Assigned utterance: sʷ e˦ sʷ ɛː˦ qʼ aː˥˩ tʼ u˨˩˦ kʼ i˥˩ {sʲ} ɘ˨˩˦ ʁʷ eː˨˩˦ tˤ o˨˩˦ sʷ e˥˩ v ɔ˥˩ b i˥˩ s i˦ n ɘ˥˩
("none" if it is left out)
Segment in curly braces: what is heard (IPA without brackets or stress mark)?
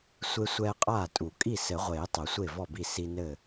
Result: s